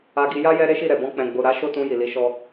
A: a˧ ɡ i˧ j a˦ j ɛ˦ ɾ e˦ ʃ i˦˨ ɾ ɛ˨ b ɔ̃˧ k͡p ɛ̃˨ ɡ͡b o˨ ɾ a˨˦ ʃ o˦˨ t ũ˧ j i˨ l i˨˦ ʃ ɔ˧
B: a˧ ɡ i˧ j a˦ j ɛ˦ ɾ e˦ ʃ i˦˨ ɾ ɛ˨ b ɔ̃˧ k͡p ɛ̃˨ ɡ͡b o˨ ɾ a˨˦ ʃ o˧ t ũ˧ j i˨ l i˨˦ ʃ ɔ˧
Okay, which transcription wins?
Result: A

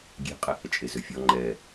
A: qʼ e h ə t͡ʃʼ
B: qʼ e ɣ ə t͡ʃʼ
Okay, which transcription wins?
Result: A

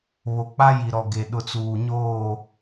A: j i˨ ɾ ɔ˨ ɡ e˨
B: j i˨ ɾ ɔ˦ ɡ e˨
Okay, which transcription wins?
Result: A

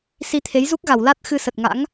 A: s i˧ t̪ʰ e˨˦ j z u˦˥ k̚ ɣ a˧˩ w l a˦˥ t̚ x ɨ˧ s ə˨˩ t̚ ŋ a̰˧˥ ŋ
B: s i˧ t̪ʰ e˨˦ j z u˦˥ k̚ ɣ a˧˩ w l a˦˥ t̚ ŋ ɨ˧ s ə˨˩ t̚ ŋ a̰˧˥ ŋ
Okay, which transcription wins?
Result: A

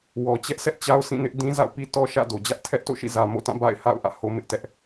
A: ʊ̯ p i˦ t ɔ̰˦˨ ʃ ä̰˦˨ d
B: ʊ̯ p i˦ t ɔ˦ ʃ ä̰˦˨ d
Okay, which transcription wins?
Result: B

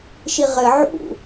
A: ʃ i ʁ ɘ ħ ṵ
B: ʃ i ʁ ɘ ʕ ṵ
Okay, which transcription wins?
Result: B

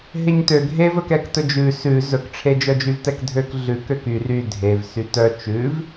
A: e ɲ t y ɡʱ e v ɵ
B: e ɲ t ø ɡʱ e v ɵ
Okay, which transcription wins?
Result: B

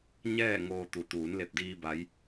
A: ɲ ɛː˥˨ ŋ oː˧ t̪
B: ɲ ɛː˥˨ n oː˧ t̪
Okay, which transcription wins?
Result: A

